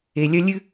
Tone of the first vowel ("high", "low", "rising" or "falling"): low